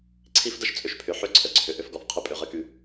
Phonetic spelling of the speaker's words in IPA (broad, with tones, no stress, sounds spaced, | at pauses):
ǀʰ i˦ f d ə˦ ʃ t͡sʼ ʏ˨ ʃ pʰ ʏ˨ ħ ʏ˦˨ ǀʰ ə˨ ǀʰ ʏ˨ ʔ ʏ˦ f ɡ ɔ˨ f qʰ ɪ˦ pʼ ʏ˨˦ ʁ ə˦ k y˦